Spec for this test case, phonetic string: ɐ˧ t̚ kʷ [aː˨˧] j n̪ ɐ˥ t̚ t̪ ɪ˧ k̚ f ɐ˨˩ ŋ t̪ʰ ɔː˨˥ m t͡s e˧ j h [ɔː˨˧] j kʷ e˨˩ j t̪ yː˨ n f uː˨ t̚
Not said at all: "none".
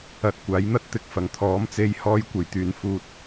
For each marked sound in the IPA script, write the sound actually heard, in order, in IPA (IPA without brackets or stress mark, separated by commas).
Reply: aː˨˥, ɔː˥